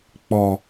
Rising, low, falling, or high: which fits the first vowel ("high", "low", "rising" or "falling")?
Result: low